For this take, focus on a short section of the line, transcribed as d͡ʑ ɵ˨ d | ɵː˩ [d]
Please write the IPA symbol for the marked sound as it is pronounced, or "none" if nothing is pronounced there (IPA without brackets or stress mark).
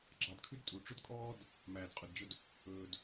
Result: d